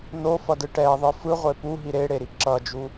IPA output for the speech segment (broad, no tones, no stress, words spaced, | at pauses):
nofʌdɯ ʈɛðˤɯ fɯʁʷe puɦi ɾeɽeɾi ǁʌd͡ʒu